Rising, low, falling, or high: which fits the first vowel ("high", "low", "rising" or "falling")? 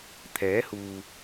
rising